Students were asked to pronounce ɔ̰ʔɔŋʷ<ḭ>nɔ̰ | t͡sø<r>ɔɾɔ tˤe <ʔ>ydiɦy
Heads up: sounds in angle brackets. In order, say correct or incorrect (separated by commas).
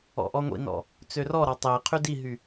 correct, correct, incorrect